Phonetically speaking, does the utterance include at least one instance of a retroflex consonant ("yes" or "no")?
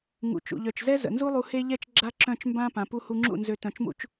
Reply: no